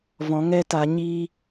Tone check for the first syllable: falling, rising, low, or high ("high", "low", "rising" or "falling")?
rising